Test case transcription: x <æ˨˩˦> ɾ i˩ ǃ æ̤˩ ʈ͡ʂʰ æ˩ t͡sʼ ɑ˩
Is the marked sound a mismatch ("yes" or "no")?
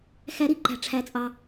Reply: no